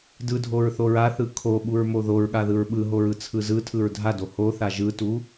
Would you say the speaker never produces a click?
yes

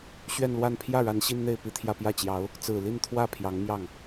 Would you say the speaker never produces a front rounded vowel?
yes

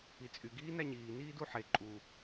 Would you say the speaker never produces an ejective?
no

